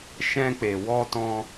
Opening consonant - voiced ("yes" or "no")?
no